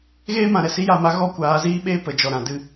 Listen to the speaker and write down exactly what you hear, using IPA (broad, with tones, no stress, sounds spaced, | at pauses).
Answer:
ɣ eː˦ m ã˨ ɾ ɛ˨ s i˦ j a˦˨ m a˦ ɣ ɔ˦ kʷ aː˨˦ z iː˦ ɓ eː˦ p ə˨ d͡ʒ ɔ˨ ɾ ã˨ d ɨ˧